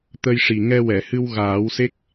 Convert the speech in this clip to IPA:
t̪ ə˧ j ʂ i˨˩ ŋ ɛ˧ w ɛ˨˩˨ h ɨ˧ w ɣ aː˨˩˦ w s e˦˥ k̚

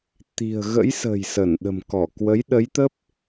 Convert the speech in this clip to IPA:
t̪ i̤˨˩ ə̯ ɣ ə̰˧˥ j s ə̤ː˨˩ j s ə˧˩ n ɗ ə̤˨˩ m k ɔ˧˩ k w ə˨˦ j ɗ ə˨˦ j t̪ ə˦˥ p̚

